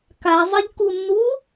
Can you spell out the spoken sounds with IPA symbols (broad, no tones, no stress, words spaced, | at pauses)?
kazˤɪʎkunːu